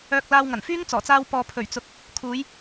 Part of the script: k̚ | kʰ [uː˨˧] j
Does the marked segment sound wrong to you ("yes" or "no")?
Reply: no